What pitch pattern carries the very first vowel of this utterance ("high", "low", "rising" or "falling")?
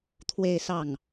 falling